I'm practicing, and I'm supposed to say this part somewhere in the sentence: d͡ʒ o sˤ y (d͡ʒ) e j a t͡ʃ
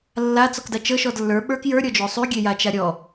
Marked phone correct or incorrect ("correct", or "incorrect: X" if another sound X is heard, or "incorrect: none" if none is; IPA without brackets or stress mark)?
incorrect: ɡʲ